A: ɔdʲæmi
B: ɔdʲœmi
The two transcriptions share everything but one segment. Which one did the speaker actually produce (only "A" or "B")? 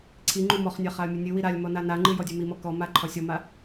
B